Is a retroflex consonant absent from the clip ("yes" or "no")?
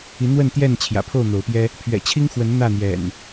yes